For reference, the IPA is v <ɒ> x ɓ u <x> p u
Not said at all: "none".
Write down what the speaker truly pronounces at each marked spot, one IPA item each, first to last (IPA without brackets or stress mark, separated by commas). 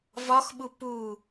ɒ, none